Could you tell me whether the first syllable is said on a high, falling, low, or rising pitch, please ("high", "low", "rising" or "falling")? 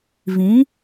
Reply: rising